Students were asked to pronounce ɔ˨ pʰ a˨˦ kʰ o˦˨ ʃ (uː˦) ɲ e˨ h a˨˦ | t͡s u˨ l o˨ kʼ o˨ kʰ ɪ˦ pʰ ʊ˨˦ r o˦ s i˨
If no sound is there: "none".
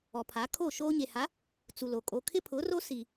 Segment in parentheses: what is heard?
oː˦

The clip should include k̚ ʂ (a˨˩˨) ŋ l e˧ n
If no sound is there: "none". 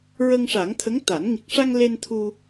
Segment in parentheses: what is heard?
a˧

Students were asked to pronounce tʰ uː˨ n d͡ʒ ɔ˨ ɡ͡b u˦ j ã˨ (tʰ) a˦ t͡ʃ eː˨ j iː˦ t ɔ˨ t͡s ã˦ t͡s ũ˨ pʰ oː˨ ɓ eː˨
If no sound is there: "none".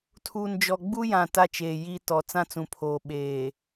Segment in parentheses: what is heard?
t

